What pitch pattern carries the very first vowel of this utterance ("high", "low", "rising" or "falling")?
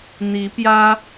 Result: rising